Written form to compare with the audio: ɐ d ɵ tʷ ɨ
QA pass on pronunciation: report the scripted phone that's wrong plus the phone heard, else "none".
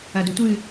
none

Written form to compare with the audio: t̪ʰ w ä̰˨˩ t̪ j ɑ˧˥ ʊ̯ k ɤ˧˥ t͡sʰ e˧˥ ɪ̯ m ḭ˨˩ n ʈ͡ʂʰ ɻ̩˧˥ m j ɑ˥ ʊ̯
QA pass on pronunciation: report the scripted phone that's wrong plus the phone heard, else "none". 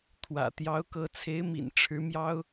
none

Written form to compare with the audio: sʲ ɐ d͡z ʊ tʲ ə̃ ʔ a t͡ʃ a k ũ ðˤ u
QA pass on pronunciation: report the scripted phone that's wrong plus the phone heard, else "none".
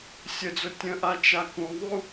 ɐ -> ə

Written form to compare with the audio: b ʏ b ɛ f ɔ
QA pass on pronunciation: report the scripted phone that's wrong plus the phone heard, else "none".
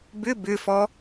ɛ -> ʏ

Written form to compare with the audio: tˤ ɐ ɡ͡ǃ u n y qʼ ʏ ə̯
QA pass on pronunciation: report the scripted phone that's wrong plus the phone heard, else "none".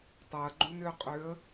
y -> ʏ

